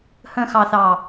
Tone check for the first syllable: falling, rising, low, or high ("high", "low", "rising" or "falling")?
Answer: low